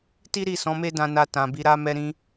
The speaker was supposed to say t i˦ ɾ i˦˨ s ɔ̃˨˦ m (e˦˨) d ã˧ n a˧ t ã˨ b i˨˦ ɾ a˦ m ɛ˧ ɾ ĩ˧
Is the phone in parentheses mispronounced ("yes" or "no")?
yes